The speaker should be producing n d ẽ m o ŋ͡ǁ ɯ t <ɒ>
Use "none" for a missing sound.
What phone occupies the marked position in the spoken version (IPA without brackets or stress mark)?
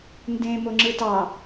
ɑ